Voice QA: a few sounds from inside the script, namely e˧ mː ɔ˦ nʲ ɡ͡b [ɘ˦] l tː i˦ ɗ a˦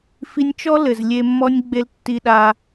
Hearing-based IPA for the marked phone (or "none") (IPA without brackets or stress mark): e˦